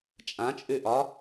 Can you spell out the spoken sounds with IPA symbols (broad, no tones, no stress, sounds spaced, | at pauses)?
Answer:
t͡ʃʼ ã t͡ʃʼ ʉ ʔ ɒ